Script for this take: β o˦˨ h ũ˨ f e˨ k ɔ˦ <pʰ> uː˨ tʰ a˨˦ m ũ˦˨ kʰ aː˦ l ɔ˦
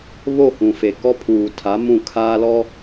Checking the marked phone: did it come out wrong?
no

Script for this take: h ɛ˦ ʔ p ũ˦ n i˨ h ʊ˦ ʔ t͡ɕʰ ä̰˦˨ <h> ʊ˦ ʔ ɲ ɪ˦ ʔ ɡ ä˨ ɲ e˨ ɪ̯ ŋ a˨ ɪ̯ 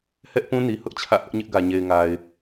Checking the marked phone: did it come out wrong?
no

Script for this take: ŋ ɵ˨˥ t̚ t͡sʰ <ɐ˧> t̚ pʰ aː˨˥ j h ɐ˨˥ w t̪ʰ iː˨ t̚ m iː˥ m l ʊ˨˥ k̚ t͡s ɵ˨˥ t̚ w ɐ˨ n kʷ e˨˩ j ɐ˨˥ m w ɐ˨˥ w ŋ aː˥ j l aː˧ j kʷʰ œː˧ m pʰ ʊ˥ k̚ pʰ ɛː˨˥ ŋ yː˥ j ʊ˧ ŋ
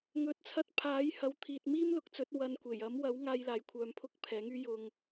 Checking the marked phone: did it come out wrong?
no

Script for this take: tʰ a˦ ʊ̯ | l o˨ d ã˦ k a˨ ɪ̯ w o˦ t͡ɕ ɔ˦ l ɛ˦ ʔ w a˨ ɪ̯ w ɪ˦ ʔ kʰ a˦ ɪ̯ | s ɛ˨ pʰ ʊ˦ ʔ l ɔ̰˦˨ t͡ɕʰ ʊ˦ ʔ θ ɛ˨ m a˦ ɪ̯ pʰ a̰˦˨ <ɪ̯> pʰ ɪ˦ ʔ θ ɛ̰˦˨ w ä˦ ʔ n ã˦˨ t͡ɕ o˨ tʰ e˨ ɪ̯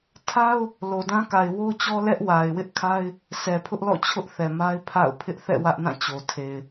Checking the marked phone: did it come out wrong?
yes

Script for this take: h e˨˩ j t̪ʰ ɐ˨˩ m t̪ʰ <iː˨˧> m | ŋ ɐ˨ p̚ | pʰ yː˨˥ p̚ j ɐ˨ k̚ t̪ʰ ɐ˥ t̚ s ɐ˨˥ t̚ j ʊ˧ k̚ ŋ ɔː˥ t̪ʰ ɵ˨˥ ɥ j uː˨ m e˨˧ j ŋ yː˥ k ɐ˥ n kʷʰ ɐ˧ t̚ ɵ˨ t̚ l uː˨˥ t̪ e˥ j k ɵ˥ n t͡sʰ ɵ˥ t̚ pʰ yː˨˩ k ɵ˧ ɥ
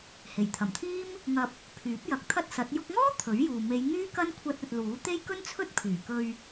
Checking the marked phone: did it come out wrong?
yes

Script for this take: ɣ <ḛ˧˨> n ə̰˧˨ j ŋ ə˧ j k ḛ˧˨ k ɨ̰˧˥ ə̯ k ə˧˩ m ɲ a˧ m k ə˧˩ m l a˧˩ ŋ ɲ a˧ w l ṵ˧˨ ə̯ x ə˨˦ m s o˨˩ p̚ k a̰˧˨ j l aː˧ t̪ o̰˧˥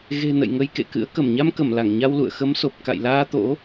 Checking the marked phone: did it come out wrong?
yes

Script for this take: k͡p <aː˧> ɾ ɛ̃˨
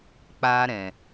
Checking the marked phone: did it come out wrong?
no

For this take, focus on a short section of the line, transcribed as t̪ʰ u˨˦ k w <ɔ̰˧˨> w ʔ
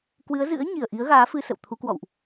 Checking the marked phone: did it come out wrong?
no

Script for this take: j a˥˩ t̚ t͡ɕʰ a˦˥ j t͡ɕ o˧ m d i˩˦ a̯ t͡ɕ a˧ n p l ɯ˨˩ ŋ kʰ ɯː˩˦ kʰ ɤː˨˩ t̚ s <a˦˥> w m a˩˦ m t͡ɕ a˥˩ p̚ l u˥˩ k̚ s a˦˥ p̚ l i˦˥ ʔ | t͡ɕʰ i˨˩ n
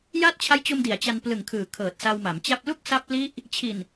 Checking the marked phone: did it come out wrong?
yes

